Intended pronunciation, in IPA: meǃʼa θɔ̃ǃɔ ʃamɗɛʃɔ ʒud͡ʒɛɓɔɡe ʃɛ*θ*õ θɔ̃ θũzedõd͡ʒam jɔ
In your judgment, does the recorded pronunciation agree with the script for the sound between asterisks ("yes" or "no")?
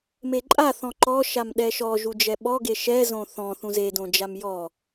no